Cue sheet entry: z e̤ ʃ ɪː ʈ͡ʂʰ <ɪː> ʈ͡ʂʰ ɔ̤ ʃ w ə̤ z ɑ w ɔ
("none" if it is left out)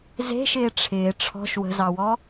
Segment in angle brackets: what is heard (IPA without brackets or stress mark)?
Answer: ɪː